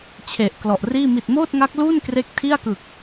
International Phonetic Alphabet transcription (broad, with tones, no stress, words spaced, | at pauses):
t͡ɕʰe˨˩ʔklɔ˨˩ʔriː˥˩ mi˨˩t̚moː˥˩t̚ŋa˦˥k̚luː˥˩n kre˦˥k̚tʰi˥˩a̯kɯ˨˩k̚